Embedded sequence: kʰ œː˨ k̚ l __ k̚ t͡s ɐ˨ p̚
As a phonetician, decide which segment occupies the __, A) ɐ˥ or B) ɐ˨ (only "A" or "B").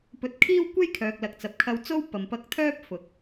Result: B